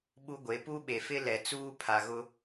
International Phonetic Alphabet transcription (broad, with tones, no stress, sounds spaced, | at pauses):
ɓ u˦ ɡʷ e˨˦ p u˦ ɓ e˨ f ɪ˦ l ɛ˨ t͡s uː˦ pʰ a˨ ɣ ʊ˦